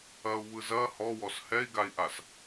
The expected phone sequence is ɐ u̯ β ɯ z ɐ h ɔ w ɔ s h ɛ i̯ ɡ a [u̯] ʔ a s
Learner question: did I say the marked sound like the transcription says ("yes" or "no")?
no